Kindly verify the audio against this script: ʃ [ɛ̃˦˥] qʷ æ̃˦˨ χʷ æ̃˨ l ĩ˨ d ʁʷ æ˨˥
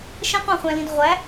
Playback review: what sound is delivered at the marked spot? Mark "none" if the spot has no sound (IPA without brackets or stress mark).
ɛ̃˦˥